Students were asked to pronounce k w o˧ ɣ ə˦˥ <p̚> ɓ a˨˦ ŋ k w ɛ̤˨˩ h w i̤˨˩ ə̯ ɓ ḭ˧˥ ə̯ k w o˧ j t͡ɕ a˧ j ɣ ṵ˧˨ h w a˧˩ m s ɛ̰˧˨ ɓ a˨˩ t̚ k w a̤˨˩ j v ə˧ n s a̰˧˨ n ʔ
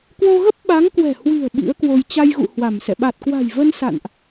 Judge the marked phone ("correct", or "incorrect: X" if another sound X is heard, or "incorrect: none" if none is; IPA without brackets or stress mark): correct